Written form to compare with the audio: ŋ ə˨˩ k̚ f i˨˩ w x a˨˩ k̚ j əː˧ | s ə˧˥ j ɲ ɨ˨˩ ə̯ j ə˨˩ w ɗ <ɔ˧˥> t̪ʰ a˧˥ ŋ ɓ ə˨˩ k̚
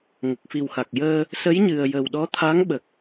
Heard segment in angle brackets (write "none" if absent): ɔ˧˥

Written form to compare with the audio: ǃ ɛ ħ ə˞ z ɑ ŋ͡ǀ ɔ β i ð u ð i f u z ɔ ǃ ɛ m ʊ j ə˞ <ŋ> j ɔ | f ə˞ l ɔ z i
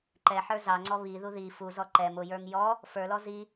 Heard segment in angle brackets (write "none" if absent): ŋ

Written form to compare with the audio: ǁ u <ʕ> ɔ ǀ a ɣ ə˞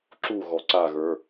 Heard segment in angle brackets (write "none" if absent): ɣ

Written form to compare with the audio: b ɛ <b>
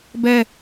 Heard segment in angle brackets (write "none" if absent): none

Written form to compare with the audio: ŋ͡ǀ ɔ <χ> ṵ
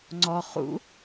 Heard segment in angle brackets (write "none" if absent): χ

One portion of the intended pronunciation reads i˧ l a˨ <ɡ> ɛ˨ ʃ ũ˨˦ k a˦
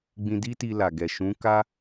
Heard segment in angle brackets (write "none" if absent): ɡ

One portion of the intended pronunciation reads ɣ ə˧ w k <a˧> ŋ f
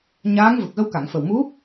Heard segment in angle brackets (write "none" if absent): a˨˩˨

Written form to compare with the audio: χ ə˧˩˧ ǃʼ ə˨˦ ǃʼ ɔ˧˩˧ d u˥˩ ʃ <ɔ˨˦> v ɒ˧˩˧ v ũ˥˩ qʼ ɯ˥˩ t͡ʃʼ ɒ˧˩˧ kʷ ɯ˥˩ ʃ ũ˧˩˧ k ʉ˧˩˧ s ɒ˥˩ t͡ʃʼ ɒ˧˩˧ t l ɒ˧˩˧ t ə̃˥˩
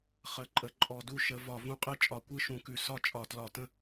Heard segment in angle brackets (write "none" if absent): ə˨˦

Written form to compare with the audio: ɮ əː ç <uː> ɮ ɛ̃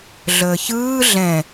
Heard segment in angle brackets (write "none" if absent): ɯː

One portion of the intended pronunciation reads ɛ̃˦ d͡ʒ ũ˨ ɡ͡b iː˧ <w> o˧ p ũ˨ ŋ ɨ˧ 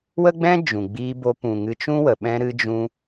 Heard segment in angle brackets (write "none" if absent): b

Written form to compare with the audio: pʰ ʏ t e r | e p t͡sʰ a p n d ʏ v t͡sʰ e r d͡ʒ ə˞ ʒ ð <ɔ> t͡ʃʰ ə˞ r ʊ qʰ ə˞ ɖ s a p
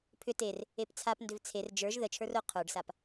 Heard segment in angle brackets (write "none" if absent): ə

